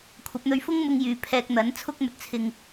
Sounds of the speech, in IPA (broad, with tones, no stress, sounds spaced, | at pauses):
kʷʰ ɐ˨˥ p̚ n̪ ɵ˧ ɥ f ʊ˥ ŋ m ʊ˥ ŋ j yː˧ pʰ ɛː˧ k̚ n̪ ɐ˨˥ n t͡sʰ ʊ˥ k̚ m ɵ˨ t̚ t͡sʰ ɪ˧ ŋ